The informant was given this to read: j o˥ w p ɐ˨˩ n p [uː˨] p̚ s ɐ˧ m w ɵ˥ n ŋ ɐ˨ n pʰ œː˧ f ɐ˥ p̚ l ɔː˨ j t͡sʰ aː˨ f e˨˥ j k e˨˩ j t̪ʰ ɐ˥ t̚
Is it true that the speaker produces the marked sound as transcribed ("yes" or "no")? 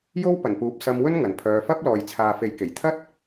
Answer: no